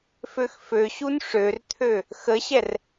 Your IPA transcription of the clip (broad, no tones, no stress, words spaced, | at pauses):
føxføɕun ʂørt̪ʰø | xəɕɛr